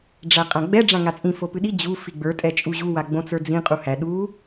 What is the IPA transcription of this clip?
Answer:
ɖ͡ʐ æ qʼ ã ɡ͡b ɛ ɖ͡ʐ ã ŋ a t͡sʼ ĩ f o p ɨ ɗ i d͡ʑ u f i ɡ͡b ə˞ tʼ ɛ t͡ʃʼ u ʑ u w a ɡ͡b õ t͡s ə˞ d͡z ĩ qʼ u h æ ɗ u

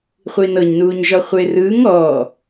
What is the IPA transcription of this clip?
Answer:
χʷ iː n ɤ ɲ n uː ɲ ʒ ɔ χʷ e r ɯː ŋ ɔː

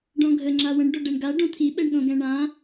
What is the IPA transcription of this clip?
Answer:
ɖ ɔ̃ ɡʱ ə ŋ͡ǁ a w ə̃ ɳ ɖ o ɖ ɛ ɳ ɡ a ɖ õ t̪ʰ i ɓ ɛ ɳ ɠ õ ɡ ɛ̃ ɳ ã

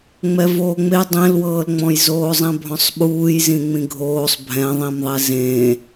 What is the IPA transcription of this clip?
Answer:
ŋ͡m ɛ v oː ŋ͡m e dˤ ẽ l w ɤː l ŋ͡m ɔ̃ j z oː zˤ ɛ̃ bʱ ɔ̃ sˤ ɓ uː j z ĩ ŋ͡m ĩ ɡʱ oː sˤ bʱ ɛ̃ ðˤ ĩ m ðˤ ɛ z ẽ

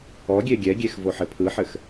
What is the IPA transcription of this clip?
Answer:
ɔ ɡʲ e ɡʲ ɛ ɡʲ e x v o ħ ɘ pʰ ɯ ħ ɘ x

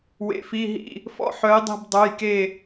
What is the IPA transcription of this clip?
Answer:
w ḛ˧˥ f i˧˥˧ ɦ ḭ˥˧ | f ɔ̰˥˧ ħ œ˧˥ j dˤ i̤˥˧ b dˤ ø˧˥˧ j k e˥˧

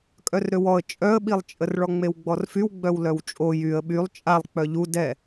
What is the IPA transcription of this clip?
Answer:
kʼ œ r ɾ ø w ɔ ə̯ t͡ʃʼ œ ə̯ ɓ i lˠ t͡ʃʼ ə r ɭ ɔ ŋ͡m e w ɡ͡b ɔ r f y w ɡ͡b œ w l œ w t͡ʃʼ o j y ə̯ ɓ y lˠ t͡ʃʼ a lˠ k͡p œ ʎ u d ɛ

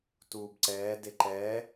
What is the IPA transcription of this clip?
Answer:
t uː b ǀ ɛː d e ǃ ɛː

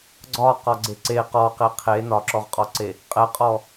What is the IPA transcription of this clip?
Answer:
ɡ͡ǀ ɒ q ɒ ɡ͡ǀ e ǀ e q ɔ q e qʰ e n ɒ ǁ ɔ ʁ qʼ ɔ ǀ e | qʼ ɛ qʼ ɔ

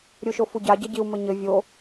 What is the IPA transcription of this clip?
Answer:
ɾʲ u ʃ o f u ɟ a ɟ ɐ ɟ i u̯ m ɘ ɲ ɘ vʲ o

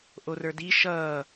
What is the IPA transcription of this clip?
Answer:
ʔ o r ə˞ d i ʃ ʌː

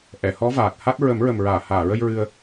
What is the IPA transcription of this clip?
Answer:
ʔ ɛ˨˩˨ h ɔ˧˥ v aː˨˩ t̚ h a˦˥ t̚ ɹ ə˨˩˦ m ɹ ə˨˩ m ɹ aː˨˩˨ h aː˨˩˨ ɹ ə˧ j ɹ ɨ˧ ə̯

